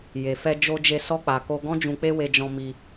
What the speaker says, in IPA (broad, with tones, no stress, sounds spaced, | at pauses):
j e˨ f ɛ˧ d͡ʒ o˧ d͡ʒ e˧ s ɔ˧ k͡p a˨ k o˧ ɡ ɔ̃˦ d͡ʒ ũ˧ k͡p e˦ w e˧ d͡ʒ ɔ̃˧ m i˧